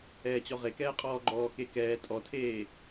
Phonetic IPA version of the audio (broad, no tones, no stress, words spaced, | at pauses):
ɛːt͡ɕɔʁekɛː qʼɔːɡ͡ǃɔːke kɛː tʼɔtʰeː